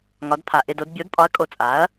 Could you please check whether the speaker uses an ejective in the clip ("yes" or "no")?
yes